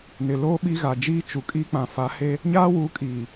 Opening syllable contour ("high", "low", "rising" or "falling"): low